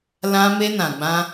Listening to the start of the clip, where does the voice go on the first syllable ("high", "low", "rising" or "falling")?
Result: high